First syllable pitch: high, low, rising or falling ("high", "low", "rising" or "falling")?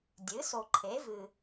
rising